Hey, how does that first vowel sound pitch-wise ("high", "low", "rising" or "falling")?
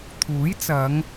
rising